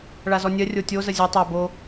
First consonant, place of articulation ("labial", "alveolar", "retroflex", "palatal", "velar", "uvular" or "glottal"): retroflex